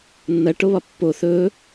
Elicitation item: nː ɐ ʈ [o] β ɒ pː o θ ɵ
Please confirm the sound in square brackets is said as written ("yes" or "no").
yes